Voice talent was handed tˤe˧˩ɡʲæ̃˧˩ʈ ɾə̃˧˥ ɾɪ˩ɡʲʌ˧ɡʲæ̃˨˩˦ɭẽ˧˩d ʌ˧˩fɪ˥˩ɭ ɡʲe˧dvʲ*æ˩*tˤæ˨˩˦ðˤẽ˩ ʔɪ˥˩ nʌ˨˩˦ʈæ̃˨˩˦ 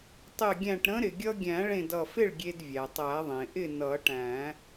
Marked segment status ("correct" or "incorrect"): correct